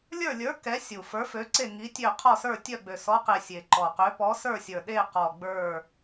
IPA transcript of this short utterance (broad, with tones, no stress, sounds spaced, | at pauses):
lʲ ə˞˦˨ lʲ ə˞˨˥ k ɛ˨˥ sʲ u˨˩ f ə˞˨˥ f ø˨˥ ǀ e˦˨ ŋ i˨˥ tʲ ø˦˨ qʰ ɔ˦˨ s ə˞˦˨ tʲ œ˦˨ ɡ͡b ø˨˩ s ɔ˨˥ q e˨˩ sʲ e˨˩ ǃ ɔ˨˩ q ø˨˥ p ɔ˨˥ s ə˞˦˨ sʲ ə˞˨˩ ɗ e˦˨ q ɔ˨˩ ɡ͡b ə˞˦˨